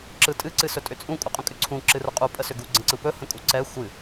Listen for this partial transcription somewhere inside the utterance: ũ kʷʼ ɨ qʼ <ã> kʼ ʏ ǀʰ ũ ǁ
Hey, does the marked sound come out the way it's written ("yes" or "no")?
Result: no